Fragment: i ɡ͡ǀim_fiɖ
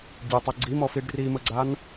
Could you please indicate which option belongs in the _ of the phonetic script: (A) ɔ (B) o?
A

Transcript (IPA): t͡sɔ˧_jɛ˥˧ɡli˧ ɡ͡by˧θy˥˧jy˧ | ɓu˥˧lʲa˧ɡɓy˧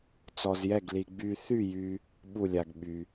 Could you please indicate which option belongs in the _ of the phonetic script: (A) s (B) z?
B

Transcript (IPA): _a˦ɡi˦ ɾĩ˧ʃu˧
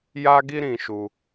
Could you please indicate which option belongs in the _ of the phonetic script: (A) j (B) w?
A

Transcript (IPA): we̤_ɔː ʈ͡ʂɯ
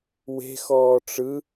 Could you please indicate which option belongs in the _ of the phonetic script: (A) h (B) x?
B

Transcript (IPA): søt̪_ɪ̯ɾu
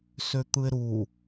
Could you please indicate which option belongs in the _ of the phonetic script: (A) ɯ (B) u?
A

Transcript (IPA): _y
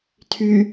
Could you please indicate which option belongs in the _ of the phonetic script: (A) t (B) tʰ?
B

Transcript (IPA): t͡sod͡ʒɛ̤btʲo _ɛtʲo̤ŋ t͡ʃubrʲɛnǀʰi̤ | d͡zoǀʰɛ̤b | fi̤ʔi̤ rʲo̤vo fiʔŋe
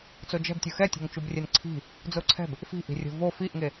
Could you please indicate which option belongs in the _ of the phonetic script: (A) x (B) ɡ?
A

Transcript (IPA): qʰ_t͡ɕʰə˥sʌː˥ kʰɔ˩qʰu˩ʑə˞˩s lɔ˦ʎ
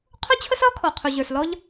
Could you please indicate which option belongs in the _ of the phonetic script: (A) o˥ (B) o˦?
A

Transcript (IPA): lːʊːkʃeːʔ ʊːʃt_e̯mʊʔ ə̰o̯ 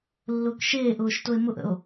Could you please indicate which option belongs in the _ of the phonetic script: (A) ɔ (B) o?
B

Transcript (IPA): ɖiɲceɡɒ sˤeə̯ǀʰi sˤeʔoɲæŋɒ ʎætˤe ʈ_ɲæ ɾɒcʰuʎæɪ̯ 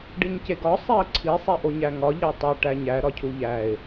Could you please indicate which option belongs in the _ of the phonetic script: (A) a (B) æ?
B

